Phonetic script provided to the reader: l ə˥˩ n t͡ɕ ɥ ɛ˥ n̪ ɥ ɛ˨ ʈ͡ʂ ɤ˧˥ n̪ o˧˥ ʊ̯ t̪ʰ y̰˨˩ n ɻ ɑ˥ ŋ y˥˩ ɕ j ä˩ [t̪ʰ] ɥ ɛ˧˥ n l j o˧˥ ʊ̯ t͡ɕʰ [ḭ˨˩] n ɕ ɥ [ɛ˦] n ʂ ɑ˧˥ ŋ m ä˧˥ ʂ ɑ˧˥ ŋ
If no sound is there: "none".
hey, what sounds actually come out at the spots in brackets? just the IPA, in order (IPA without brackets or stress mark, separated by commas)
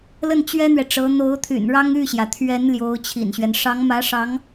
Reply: t̪ʰ, ḭ˨˩, ɛ˦